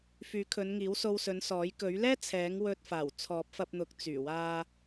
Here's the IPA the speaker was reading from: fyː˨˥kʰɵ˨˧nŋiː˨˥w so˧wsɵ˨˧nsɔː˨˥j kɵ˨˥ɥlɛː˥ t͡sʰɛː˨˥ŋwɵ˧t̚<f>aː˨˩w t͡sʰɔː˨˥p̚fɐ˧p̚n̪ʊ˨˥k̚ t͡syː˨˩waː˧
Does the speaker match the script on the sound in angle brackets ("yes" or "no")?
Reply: yes